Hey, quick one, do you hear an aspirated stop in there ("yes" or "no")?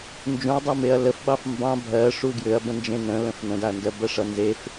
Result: no